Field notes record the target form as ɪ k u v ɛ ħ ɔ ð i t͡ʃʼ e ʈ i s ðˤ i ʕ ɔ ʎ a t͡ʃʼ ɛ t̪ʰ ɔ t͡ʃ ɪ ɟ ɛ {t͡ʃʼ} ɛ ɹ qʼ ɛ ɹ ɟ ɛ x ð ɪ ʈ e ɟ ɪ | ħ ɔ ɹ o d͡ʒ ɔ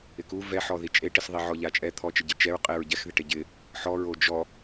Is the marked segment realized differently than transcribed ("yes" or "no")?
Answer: yes